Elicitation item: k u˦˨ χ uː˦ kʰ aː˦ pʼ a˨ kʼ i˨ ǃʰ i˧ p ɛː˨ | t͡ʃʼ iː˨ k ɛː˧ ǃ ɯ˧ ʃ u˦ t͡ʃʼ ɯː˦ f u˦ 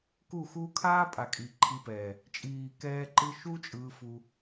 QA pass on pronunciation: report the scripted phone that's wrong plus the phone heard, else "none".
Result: χ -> x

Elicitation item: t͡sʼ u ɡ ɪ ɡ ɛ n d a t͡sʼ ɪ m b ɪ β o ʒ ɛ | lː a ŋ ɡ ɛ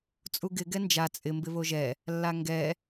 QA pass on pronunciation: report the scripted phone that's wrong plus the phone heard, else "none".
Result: d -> d͡ʒ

